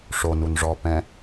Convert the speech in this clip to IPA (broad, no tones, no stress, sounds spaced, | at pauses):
ʂ o n u n ʐ ɔ p ɛ̃